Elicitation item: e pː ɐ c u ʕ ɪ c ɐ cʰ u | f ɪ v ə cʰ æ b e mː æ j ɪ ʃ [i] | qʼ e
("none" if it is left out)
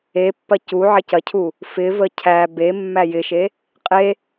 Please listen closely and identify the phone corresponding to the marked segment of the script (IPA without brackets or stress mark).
e